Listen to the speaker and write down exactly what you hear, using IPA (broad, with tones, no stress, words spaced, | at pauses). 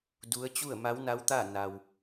du˧˥ə̯ t͡ɕu˥˨ə̯ ma˧˥wna˧˥wt̪a˥˨ na˧w